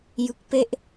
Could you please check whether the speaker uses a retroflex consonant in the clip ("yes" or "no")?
no